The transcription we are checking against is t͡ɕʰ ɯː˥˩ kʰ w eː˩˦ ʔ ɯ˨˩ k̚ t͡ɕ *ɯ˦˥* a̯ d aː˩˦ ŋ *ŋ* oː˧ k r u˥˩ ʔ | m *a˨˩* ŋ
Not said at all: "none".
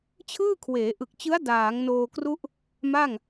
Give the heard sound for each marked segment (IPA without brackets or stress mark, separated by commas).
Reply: ɯ˦˥, n, a˥˩